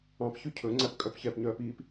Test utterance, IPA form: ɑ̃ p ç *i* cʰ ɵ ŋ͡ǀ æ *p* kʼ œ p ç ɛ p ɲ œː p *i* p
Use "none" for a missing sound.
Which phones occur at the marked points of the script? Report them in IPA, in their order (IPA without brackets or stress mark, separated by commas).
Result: y, p, i